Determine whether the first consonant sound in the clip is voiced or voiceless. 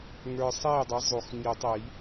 voiced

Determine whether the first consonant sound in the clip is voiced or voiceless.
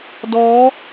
voiced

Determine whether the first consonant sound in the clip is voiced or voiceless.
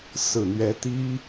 voiceless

